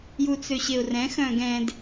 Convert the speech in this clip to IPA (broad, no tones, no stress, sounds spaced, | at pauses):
j u t͡s ø ɕ e ʊ̯ r ɛ̃ x œ̃ ɡ ɛ̃ d